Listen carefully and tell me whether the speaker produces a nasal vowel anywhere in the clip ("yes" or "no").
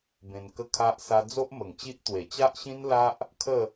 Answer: yes